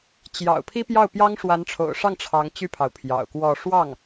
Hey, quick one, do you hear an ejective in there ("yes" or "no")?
no